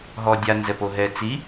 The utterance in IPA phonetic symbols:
ɦɔdʲa nzɛpoɦɛ t͡si

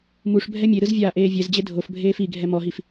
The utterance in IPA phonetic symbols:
muʂ bʱɛmʲeɾɯz vʲaːʔeːvʲɛzd͡ʑe dʱofbʱeːf iɡʱɛ mɔɦif

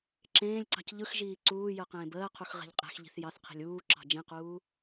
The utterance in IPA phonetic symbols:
ǁẽːlʲǀɑ̤c ʎɯxʒiː ǀuː jɯqẽːbəːqʰux ʁe̤ʎqʼe̤xʎi̤θ jɑθqʰi̤lʲ uː ǁɑ̤d͡ʒĩquː

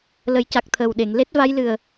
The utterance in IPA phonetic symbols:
lə˨˩˦jca˨˩k̚ t̪ʰəː˨˩wɗe˨˩˨ŋ le˦˥t̚va˧˥jlɨ˨˩ə̯

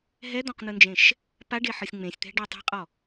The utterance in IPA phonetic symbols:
ɦɛd̪ɔ̃qn̪ɯnd͡ʒẽʃ | paɖeħɤsʲ ŋ͡mẽsʲt̪ɛ̤ɖɛ tˤe̤qʼɔ

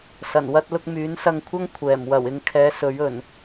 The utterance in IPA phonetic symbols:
sɐ˨˩nwɐ˧t̚lʊ˧k̚ myː˨˥nsɐ˧ŋkʷʰɐ˥ŋ kʷʰɛː˨˩m wɐ˨˩wɪ˨ŋkʰɛː˨˧ sɵ˨˥ɥɵ˨˩n

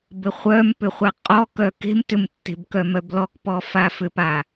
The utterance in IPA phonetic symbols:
bɘχʷœmpʏ χʷaqʼɔkœ ke̤m tʏmtːe̤b kœmœblɔkpɔ fafʏpa

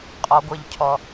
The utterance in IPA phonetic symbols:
qʼɔɡʷəʎcʰɔ

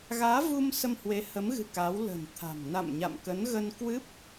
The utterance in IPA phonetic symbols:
ɣaː˨˦vu˧m sə˧mhwe˨˦hə˨˦mɣɨ̤˨˩ ka˨˦wlə̤˨˩nt̪ʰa̤˨˩m na̰˧˨mɲa̰˧˨mkə˨˦n ɣə˧nkwɨ˦˥p̚

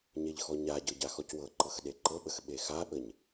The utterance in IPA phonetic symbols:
ɲeʎxɔɲaɟɤ ɟaxɔcwɤǃɤx ɗeǃɤɓəx ɓexaɓəɲ

